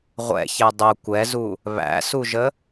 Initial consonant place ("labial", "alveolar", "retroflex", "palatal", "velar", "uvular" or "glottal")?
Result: uvular